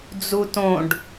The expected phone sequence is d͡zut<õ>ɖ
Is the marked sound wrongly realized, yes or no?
no